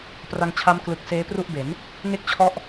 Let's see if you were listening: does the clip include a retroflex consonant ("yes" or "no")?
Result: no